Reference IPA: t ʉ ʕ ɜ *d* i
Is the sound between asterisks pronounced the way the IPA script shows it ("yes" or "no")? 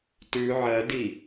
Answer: yes